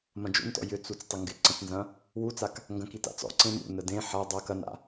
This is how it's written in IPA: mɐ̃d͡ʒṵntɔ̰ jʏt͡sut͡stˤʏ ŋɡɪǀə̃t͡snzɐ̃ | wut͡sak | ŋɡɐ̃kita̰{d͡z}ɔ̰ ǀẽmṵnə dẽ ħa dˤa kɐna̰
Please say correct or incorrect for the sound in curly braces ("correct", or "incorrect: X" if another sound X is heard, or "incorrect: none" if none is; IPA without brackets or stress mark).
incorrect: t͡s